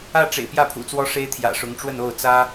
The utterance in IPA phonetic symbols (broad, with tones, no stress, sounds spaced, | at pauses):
ä˥˩ ʈ͡ʂ ḛ˨˩ ɪ̯ p j ä˥˩ pʰ ṵ˨˩ t͡s w ɔ˥ ʂ e˥ ɪ̯ t̪ʰ j ä̰˨˩ ʂ ʊ˧˥ ŋ ʈ͡ʂ w ə˥˧ n o˥˩ ʊ̯ t͡s ä˥